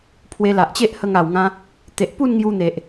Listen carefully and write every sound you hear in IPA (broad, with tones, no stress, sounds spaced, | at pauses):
pʰ w e˧ l a˨ ʔ t͡ɕ e˦ ʔ h ə˧ ŋ a˨˩ w ŋ ã˧ | t̪ e˨ ʔ p u˥˧ n ŋ j u˧ n̪ e˨ ʔ